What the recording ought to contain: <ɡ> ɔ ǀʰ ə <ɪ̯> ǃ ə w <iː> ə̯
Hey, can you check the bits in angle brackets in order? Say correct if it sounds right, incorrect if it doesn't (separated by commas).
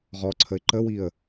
incorrect, correct, incorrect